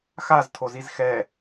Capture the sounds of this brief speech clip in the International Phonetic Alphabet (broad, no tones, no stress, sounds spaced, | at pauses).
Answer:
x a z tʰ o z i z x ɛ